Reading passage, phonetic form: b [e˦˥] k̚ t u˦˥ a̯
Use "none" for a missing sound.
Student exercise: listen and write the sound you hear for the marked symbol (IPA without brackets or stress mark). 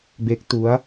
e˦˥